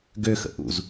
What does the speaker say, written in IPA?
ɡ ø x ə̰ ʔ ṵ z

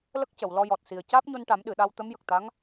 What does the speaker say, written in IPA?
l ə˦˥ k̚ c ə˨˩˨ w l ɔ˧ j ɔ˨˩ t̚ s i˨˩ ə̯ c aː˦˥ p̚ ɲ o˧ n ʈ a˨˩˦ m ɗ ɨ˨˩˨ ɗ a˧ w t̪ ə˧˥ m j ə˨˩ k̚ t̪ a˧˥ ŋ

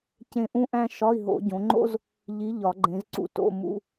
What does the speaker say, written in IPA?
c ẽ˦˨ ʔ ũ˥ ʔ æ̃˥ ʃ ɒ˧˥˧ i̯ ɦ o̰˨˩˦ ɟ õ˨˦ ŋ͡ǃ o̰˥ z | ʎ i˨˦ ʎ ɒ˨˩˦ ɡ͡ǃ ẽ˨˦ z ǀ ṵ˦˨ t o̰˧˥˧ m ṵ˧˥˧

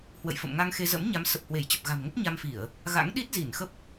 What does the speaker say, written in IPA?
h w ə̰˧˨ j f ə̰˧˨ m ŋ a˧ ŋ x e˧ z ə̰˧˥ m ɲ a˨˦ m s ə˨˩ p̚ h w e˧˩ j t͡ɕ ə˨˩ p̚ ɣ a̤˨˩ m ŋ ə˦˥ p̚ ɲ a˧ m f i˧˩˨ ə̯ | ɣ a̰˧˥ ŋ ɗ i˦˥ t̚ z i˧˩ n x ə˦˥ p̚

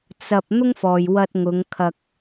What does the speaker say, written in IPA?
t͡s ɐ˨ p̚ n̪ ʊ˥ ŋ f ɔː˨ j w ɐ˧ t̚ ŋ ʊ˨˧ ŋ kʰ ɐ˧ k̚

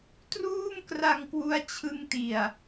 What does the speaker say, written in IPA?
t r uː˥˩ m k r a˧ ŋ k w u˦˥ a̯ t͡ɕʰ ɯ˧ ŋ t i˨˩ a̯

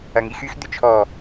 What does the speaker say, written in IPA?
ɐ ŋ i x y x d̪ ʏ t͡ʃʰ ɔ

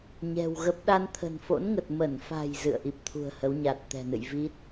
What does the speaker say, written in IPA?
ɲ ɛ̤˨˩ w ɣ ə˦˥ p̚ ɗ a˧ n t̪ʰ ə̤˨˩ n f o̰˧˥ n ŋ ə˨˩ t̚ m ə˧˩ n f a̤˨˩ j z ɨ̰˧˨ ə̯ ʔ i˨˩ p̚ t̪ʰ ṳ˨˩ ə̯ h ə˨˦ w ɲ a˨˩ t̚ t̪ ɛ̤˨˩ n ɨ̰˧˨ j v i˦˥ t̚

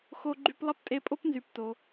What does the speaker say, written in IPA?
x o˧ ɡ͡ǃ y˧ p lˠ ɐ˥ p tʼ e˧ pʼ o˥ p n z y˩ p t o˩

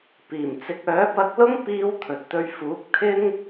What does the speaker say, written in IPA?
p iː˨˩ m t͡s ɪ˨˥ k̚ œː˨˥ p ɐ˧ k̚ l ʊ˥ ŋ p iː˥ w t̪ʰ ɵ˨ t̚ t̪ ɵ˧ ɥ f uː˨˥ k̚ t̪ʰ ɪ˥ ŋ

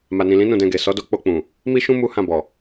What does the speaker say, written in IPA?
m a˨ n ĩ˨ l ĩ˨˦ n ũ˦˨ d ɛ̃˧ ɡ e˨ s ɔ˨˦ d o˦˨ k͡p o˧ k͡p ũ˨ | m i˦ ʃ ũ˦ m u˦ h ã˦˨ b ɔ˨

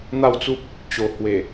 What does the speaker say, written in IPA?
n̪ a˥˧ w t͡s u˦ p̚ | t͡ɕ o˨˩ h w e˨˩

